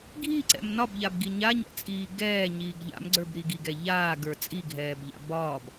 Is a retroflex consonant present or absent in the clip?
absent